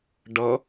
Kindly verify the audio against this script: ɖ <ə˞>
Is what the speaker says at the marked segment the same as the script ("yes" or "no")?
no